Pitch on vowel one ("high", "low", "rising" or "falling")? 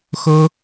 high